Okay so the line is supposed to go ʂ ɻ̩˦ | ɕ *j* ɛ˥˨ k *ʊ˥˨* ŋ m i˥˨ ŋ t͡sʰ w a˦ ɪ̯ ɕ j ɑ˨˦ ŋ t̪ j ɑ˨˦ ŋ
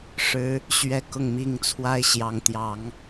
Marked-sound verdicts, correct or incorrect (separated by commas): incorrect, correct